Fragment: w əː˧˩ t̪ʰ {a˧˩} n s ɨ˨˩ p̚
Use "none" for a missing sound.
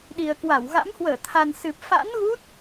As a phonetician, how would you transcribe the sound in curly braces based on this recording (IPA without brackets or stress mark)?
a˨˩